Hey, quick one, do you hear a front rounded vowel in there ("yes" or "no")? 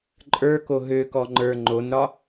yes